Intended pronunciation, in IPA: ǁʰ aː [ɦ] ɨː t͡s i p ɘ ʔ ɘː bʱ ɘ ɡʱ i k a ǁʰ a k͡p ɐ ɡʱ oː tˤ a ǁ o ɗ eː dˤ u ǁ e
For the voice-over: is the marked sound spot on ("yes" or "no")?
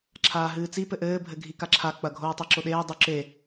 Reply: yes